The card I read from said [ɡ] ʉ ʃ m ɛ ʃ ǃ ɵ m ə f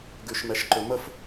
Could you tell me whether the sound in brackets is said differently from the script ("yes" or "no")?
no